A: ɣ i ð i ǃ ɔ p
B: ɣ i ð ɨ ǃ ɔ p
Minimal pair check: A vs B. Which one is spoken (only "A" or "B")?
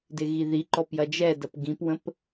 A